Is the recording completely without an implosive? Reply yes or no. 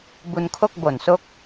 yes